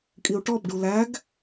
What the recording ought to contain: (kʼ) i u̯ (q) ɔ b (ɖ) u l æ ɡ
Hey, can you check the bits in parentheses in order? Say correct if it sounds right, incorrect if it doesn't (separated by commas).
correct, incorrect, correct